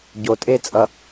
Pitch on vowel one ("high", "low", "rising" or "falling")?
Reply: low